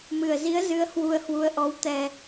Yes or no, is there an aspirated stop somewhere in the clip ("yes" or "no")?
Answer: no